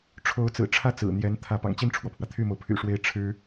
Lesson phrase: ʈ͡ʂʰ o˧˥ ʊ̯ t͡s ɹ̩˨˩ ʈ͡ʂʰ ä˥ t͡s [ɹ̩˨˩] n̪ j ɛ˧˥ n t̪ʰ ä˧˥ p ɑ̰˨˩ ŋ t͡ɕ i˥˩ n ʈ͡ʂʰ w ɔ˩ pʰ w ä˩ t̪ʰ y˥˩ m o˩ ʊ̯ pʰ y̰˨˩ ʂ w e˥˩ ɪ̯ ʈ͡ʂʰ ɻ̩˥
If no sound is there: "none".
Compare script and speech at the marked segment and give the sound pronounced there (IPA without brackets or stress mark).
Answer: ɹ̩˨˩